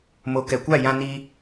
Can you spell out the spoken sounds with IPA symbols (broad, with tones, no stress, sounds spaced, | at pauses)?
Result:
m o˨ k ɛ˨ kʷ a˦˨ j ã˦ n i˦